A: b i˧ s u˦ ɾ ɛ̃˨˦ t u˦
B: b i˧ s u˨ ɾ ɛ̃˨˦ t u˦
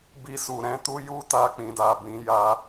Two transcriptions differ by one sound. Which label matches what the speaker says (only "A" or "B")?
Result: B